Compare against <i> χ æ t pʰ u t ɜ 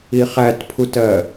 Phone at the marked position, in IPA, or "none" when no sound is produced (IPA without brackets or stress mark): i